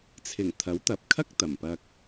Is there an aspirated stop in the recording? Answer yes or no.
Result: yes